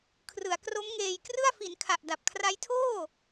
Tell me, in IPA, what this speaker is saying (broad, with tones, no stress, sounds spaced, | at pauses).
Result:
kʰ r ɯ˩˦ a̯ k r o˦˥ m ŋ eː˧ j k r ɯ˥˩ a̯ f i˩˦ n kʰ a˨˩ ʔ d a˨˩ p̚ kʰ r a˦˥ j tʰ oː˥˩